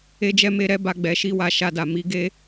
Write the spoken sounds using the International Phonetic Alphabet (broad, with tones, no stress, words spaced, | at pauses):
e˦d͡ʒɛ˦me˦ ɾɛ˦ba˧ ɡ͡bɛ˧ʃi˦wa˧ ʃa˧da˨mi˨˦ɡe˦